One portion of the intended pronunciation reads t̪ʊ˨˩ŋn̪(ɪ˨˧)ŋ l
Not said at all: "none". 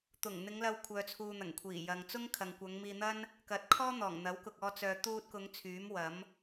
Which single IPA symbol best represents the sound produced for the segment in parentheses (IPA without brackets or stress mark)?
ɪ˨˧